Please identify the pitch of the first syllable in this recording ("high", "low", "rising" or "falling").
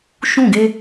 falling